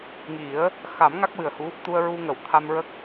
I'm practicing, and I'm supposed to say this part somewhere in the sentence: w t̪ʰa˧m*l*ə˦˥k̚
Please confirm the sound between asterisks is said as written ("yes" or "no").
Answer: no